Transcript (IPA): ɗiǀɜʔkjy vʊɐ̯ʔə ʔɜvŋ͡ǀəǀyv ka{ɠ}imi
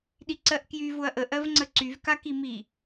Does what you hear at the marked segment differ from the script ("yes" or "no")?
yes